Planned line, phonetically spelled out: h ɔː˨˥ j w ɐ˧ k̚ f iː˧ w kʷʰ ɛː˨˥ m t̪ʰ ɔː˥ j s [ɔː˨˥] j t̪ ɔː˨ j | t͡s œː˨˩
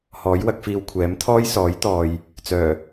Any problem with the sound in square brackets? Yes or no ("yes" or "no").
no